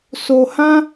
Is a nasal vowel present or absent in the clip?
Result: present